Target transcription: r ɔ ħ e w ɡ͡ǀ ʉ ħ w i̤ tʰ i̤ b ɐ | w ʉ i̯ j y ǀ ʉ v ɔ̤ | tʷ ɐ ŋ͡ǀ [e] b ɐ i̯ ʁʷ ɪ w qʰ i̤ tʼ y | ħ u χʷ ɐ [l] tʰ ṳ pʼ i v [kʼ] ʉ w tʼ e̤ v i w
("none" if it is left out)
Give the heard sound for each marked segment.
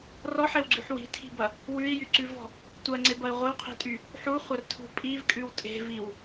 e, r, kʼ

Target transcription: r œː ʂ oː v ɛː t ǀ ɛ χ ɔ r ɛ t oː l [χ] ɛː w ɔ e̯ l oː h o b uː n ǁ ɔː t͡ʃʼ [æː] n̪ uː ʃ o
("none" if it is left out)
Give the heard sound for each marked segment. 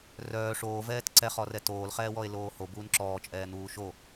χ, ɛː

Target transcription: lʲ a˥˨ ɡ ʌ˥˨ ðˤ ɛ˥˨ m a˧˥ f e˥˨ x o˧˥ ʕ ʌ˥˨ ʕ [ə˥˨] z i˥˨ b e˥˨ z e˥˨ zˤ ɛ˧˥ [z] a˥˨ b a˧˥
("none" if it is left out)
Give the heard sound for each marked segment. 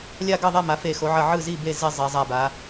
ɯ˥˨, zˤ

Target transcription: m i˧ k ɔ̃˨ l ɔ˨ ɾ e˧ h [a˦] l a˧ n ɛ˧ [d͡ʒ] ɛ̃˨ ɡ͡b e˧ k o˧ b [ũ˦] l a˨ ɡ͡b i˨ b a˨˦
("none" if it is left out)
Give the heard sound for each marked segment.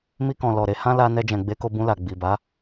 ã˦, d͡ʒ, ũ˧

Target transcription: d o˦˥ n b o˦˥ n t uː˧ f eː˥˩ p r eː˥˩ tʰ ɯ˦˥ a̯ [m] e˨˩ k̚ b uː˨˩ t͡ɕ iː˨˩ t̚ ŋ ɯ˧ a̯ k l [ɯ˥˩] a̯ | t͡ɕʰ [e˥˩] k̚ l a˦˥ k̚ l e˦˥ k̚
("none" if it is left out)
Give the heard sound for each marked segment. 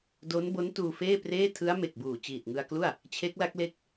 m, u˥˩, e˦˥

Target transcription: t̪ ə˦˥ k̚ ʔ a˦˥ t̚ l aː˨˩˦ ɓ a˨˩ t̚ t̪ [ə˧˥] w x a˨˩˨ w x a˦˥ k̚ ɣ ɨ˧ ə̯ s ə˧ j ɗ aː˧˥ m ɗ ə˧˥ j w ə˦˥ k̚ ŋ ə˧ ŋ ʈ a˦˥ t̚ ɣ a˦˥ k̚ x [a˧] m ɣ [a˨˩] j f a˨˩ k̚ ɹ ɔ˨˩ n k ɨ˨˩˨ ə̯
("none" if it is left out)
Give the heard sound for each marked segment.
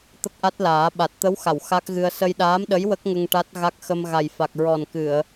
ə˧˥, ə˧, a˨˩

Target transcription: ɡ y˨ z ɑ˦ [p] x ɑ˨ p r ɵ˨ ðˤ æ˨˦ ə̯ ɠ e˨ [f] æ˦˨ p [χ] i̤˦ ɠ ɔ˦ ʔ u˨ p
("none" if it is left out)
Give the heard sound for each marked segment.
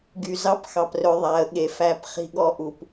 p, f, χ

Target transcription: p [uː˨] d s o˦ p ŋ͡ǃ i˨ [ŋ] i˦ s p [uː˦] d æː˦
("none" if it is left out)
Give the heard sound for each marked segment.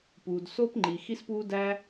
uː˨, x, uː˦

